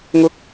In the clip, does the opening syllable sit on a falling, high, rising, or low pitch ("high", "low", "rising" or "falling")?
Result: high